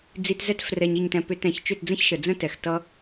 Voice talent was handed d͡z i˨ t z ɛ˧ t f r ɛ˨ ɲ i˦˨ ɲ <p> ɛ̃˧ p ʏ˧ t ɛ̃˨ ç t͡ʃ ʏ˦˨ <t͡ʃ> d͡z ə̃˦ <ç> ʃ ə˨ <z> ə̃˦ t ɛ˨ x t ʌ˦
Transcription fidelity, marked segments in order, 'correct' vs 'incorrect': incorrect: t, incorrect: t, correct, incorrect: d͡z

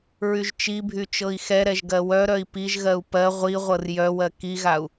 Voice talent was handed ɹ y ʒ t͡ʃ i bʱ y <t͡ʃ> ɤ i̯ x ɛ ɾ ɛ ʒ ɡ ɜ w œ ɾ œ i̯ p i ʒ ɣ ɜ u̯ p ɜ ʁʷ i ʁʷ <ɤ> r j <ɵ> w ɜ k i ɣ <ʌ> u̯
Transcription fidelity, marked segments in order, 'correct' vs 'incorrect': correct, correct, incorrect: œ, incorrect: a

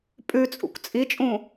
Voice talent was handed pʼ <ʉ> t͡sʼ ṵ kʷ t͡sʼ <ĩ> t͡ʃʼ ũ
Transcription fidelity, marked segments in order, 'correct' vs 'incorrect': correct, incorrect: i

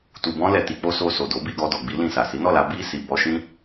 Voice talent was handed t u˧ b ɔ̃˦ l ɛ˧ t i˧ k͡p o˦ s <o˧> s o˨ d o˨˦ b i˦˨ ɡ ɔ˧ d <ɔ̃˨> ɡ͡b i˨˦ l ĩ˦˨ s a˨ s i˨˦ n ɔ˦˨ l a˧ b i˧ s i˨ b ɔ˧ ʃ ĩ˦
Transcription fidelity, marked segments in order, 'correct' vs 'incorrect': correct, incorrect: ɔ˨

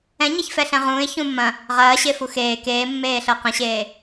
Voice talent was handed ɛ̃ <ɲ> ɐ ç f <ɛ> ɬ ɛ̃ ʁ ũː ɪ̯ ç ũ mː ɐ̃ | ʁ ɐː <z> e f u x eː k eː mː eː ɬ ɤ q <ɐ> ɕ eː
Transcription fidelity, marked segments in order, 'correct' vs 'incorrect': correct, correct, incorrect: ɕ, incorrect: ɐ̃

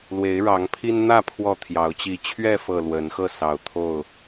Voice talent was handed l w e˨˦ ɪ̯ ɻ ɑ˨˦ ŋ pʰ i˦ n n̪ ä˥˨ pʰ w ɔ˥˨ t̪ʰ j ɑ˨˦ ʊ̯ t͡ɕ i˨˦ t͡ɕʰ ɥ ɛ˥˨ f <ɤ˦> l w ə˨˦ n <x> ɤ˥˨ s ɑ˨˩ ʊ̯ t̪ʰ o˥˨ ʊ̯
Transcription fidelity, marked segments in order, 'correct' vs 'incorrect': incorrect: ɤ˨˩, correct

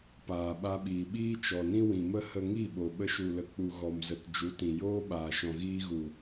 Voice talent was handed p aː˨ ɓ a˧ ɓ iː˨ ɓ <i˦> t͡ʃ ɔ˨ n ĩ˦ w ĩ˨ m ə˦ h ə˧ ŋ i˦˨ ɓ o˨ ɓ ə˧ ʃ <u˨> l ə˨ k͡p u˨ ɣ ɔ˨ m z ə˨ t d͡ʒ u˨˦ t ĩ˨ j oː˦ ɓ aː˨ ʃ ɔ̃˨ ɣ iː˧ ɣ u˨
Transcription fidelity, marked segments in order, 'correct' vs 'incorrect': incorrect: iː˦, correct

